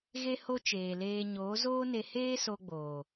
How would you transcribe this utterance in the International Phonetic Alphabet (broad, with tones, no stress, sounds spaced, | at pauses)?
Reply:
ɣ e˦ h o˦ t͡ʃ eː˨ l eː˧ ɲ oː˨˦ z oː˦ n e˧ h eː˦ s o˧ ɡ͡b oː˨